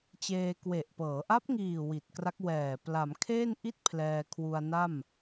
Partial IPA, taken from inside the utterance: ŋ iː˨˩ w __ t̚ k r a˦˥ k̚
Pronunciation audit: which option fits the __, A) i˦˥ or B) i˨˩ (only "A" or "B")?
B